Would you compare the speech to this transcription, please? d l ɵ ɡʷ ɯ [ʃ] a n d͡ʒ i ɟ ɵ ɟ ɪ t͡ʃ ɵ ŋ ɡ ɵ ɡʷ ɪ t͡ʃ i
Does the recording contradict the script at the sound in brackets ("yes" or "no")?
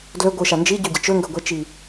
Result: no